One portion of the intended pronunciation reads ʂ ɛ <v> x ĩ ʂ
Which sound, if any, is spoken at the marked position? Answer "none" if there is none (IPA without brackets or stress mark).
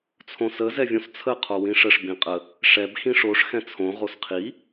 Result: b